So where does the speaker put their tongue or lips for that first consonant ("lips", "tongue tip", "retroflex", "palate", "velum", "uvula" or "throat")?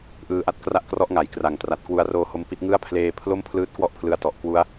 throat